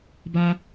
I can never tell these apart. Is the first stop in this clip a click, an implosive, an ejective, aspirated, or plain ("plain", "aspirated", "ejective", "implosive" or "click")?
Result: plain